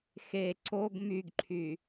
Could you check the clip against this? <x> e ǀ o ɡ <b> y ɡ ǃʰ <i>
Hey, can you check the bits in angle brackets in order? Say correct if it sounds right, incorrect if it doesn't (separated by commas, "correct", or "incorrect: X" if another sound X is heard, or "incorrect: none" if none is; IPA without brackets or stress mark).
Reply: correct, incorrect: m, incorrect: y